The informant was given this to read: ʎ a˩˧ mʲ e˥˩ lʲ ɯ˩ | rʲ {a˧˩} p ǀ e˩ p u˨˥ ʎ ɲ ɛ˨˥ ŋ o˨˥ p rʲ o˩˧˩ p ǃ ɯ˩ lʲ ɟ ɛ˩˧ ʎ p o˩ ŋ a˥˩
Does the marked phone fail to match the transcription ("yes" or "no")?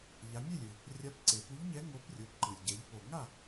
yes